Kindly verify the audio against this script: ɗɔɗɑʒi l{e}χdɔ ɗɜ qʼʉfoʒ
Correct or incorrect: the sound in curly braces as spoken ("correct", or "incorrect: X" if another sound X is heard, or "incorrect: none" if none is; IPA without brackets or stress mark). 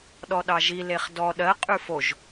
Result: correct